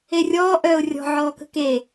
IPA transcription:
erʲɔː ʔœːʊ̯rʲɔ̤ ʕɔːkə̤ke

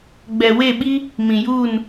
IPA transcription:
ɡ͡bɛ˨we˦˨ɓi˦ | mĩ˨juː˦˨n

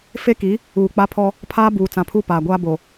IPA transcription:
fe˦ki˨˦ | uː˨k͡pa˦pʰɔ˦ | pʰaː˦buː˨ t͡sã˨pʰuː˦paː˨ɡʷaː˦ bo˨

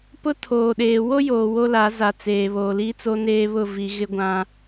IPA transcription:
pʊ˦ tʰoː˨ɗeː˨ wo˦joː˨ wo˦la˨˦ za˨t͡seː˨ βoː˨liː˦ t͡so˦neː˦ βʊ˦˨vi˨ ɣɪ˦ɡʷã˦

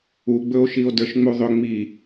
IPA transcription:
uɡ͡bɵo̯ʃio̯də˞ʃ ŋ͡muðˤʏ ŋ͡mi

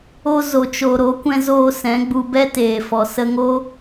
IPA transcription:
o˧zo˨t͡ʃo˨ ɾo˨˦kʷɛ̃˧zoː˧ sɛ̃˨˦ɡ͡bu˧ bɛ˦teː˨fɔ˨ sə˧ŋo˦

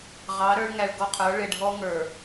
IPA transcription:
ʁɑ˨˦ ɾə˞˦ɭ ŋæ˨ɭɡɔ˦qʰə˞˨˦ ɭɪ˨ɖʱɔ˦ŋə˞˨

